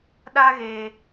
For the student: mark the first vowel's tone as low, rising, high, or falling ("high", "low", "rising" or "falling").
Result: high